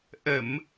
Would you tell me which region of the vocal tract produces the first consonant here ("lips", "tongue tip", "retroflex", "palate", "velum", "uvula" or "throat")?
throat